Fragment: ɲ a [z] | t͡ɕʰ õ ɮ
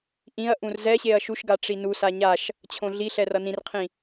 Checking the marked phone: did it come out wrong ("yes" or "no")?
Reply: yes